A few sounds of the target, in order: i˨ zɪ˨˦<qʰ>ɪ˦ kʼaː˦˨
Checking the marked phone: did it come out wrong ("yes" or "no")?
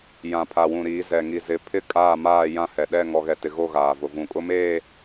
yes